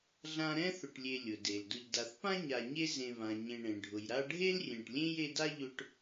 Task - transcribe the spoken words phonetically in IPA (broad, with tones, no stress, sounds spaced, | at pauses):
ɮ ã˦ ɾ ɛ̃˥ θ ʊ˨ ʈ lʲ e˨ lʲ ʊ˩ d e˩ l d ʊ˨ ʎ d a˨ θ p ã˥ ɲ a˨ ɲ e˦ z ẽ˨ β ã˩ ɲ ẽ˨ ɳ ẽ˩ ɖʱ ʊ˩ j ɾ a˦ ɖʱ e˥ l rʲ ẽ˨ ʈ lʲ ẽ˥ j e˦ d a˥ ʎ ʊ˦ ʈ